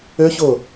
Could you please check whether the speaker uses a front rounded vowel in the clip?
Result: yes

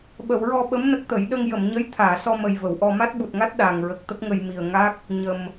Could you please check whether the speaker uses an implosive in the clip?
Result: yes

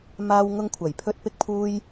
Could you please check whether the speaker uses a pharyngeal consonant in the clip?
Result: no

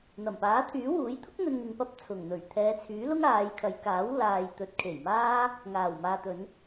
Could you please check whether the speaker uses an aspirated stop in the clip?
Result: yes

